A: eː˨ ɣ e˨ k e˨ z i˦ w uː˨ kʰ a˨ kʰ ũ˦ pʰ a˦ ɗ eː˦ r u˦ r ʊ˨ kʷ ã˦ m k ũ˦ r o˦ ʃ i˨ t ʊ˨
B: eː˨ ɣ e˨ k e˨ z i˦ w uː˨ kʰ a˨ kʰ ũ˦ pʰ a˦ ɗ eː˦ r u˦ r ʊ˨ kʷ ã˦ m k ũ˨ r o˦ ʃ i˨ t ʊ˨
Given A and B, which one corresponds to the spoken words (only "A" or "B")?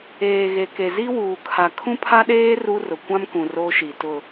B